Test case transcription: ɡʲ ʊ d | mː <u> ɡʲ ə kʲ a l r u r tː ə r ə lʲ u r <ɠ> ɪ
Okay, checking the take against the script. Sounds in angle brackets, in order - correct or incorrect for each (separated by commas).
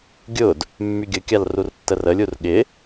incorrect, correct